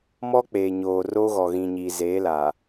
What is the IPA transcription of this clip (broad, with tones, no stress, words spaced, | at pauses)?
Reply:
mɔ˦k͡peː˨ɲoː˨ ro˦ɣɔ˨ɣĩ˨ɲi˨ zeː˨˦la˨